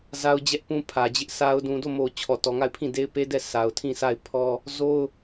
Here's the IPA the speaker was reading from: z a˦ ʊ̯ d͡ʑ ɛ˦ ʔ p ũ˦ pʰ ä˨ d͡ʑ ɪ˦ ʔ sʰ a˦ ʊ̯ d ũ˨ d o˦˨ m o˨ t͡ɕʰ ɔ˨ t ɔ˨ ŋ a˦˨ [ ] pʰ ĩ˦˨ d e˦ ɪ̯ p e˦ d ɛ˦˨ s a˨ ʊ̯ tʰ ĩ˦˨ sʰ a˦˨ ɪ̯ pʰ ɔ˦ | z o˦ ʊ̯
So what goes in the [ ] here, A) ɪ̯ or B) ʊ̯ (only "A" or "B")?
A